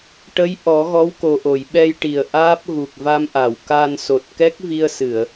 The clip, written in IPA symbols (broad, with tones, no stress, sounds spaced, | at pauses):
ʈ ə˧˥ j ʔ ɔ˨˩˦ ɣ ɔ˧˥ w k o˨˩ ʔ o˨˩˨ j ɓ ɛ˧ j ʈ i˨˩ ə̯ ʔ aː˦˥ p̚ ɣ u˨˩ k̚ v a˧ m ʔ a˨˩˨ w k a˧ n s o˨˩ t̚ k ɛ˦˥ k̚ v i˧ ə̯ s ɨ˨˩˨ ə̯